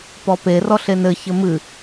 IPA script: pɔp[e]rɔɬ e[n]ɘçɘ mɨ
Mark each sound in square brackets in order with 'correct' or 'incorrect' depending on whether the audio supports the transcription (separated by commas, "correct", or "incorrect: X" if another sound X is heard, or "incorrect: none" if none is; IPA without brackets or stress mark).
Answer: correct, correct